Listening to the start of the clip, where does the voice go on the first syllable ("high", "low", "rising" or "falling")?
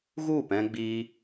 falling